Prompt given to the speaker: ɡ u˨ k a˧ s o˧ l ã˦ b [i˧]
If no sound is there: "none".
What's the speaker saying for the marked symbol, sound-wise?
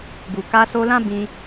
ĩ˧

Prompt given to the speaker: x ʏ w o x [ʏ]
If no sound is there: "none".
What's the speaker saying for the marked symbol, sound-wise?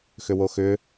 ʏ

